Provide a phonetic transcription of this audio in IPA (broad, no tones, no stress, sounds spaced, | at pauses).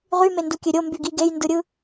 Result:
ʁ y m e n d u kʲ ø ɾʲ o m b y ɡ i ɡ e j n d ɯ ɾʲ ɯ